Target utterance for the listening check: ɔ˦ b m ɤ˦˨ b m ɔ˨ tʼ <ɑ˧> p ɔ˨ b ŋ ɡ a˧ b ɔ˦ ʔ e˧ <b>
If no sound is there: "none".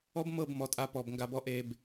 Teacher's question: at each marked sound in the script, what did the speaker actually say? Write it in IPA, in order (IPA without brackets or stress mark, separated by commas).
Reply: a˧, b